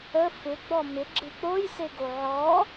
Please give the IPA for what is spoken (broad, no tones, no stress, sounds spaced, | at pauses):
ə f ɪ ɡ͡b ɔ m ɪ ɡ͡ǁ ɨ k͡p o j s e ɡ o ʕ ɔ